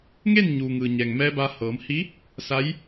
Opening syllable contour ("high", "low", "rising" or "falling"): falling